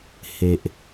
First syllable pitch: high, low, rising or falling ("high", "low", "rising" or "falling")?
low